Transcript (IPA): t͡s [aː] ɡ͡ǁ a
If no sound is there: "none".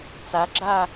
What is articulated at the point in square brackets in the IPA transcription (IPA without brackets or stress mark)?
a